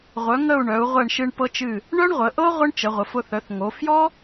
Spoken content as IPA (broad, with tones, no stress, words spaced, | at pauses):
ʁʷœ˩˧ŋə˧˩u̯ ɳœ˩˧u̯ʁʷɛ˧˩ɳ ʃɨ˧ɳpɤ˧t͡ʃɨ˧˩ | ɳœ˥ɳʁʷə˩˧ʔɤ˥ ʁʷə˥ɳ t͡ʃə˩˧ʁʷə˩˧fʊ˧ θœ˩˧θŋo˩˧ fjɔ˥